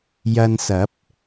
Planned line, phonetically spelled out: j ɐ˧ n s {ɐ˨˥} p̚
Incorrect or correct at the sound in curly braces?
correct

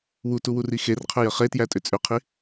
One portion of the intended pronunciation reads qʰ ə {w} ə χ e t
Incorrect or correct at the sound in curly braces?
incorrect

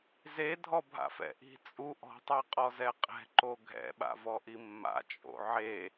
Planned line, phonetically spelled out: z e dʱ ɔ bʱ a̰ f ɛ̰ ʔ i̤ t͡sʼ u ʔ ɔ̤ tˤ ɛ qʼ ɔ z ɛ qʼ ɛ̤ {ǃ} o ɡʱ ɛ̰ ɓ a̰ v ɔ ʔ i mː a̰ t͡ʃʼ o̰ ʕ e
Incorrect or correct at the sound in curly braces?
correct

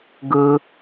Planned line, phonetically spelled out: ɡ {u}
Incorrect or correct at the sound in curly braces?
incorrect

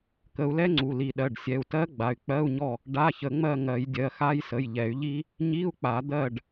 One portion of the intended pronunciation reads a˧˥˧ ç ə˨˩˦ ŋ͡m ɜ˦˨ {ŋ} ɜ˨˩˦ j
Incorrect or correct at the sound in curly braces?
correct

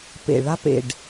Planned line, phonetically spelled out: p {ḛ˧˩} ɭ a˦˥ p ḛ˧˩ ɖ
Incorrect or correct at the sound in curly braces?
correct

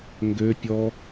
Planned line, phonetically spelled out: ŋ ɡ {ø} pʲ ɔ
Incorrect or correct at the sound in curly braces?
correct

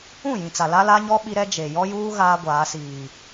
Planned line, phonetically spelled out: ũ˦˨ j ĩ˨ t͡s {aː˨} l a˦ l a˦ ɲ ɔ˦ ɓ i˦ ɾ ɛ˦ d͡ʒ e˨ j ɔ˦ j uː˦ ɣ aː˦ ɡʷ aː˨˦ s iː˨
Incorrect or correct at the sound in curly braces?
incorrect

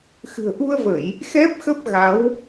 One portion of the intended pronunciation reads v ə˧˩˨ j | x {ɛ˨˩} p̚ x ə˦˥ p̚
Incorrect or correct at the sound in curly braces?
incorrect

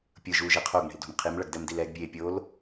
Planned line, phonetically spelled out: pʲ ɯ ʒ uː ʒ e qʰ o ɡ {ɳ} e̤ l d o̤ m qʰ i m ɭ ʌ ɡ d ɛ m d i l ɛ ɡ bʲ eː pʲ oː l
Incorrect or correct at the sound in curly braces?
correct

